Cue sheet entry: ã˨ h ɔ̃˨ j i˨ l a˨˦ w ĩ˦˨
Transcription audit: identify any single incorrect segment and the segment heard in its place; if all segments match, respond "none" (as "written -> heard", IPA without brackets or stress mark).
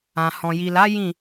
w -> j